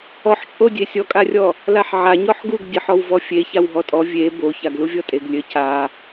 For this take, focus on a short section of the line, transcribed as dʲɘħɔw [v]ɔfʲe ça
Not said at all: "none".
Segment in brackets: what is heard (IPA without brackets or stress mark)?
v